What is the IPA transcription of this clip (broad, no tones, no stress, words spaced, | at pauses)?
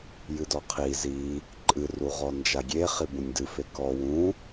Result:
jɨdɔqʰi zi | ǃʼɨruʁɔ nd͡ʒaɡʲe χibũnʲdɨ fekɔ wũ